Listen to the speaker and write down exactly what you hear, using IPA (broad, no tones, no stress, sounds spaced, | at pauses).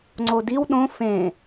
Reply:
ŋ͡ǀ o d i w ɗ õ f ẽ